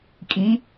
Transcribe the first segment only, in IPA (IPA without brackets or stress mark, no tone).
kʼ